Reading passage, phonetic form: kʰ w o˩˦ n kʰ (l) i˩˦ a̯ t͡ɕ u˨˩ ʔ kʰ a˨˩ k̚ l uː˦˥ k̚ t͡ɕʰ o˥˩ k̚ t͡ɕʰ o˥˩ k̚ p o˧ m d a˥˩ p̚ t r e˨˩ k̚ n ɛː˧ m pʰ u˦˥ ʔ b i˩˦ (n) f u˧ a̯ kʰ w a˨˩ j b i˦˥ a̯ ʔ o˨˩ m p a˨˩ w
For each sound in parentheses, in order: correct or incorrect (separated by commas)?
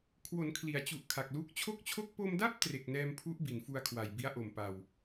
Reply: correct, correct